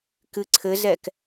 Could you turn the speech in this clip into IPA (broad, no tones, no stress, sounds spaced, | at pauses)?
k ɨ ǀʰ ɘ z ɛ k